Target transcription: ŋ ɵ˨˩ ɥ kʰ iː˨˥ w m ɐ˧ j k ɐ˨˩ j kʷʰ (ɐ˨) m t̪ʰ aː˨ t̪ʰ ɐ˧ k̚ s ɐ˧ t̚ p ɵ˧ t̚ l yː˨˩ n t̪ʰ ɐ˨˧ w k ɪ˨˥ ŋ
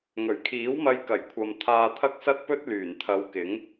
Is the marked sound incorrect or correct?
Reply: correct